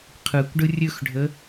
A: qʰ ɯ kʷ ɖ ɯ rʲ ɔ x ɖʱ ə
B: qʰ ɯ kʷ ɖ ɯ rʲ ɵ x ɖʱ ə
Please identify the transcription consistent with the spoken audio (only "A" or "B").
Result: B